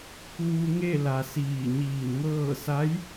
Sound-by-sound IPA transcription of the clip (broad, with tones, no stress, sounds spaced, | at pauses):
k uː˧ ŋ e˥˨ l a˩ s iː˧˩ ɲ iː˧˩ n ŋ ɤː˥˨ s a˧˥ j